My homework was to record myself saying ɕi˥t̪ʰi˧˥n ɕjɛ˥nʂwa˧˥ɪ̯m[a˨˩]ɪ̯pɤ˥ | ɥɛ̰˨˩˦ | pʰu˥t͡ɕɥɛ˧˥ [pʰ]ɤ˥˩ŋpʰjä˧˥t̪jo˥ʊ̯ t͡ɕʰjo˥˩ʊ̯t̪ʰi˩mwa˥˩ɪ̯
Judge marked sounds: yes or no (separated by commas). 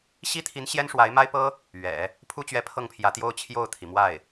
no, yes